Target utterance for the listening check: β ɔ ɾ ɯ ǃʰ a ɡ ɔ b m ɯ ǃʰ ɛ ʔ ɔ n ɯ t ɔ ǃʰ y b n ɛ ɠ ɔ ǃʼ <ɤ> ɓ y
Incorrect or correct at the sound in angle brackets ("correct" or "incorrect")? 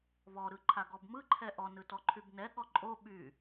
incorrect